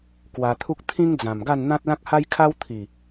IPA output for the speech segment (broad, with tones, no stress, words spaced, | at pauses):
kwa˧t̪ʰu˦k̚ t̪ʰĩ˦ŋd͡zã˨˩mɡa˥˧n n̪ã˦t̚lã˦k̚ha˦jkʰa˦w t̪ʰi˨˩